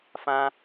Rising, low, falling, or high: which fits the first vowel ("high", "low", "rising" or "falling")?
high